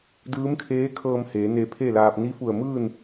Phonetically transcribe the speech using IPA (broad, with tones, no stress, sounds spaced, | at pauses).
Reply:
d ɯː˧˥ m kʰ eː˧˥ kʰ ɤː˧ m h eː˩˧ n eː˧ pʰ eː˥˨ l aː˧ p̚ n i˧˥ f u˧˩ ə̯ m ɯː˥˨ n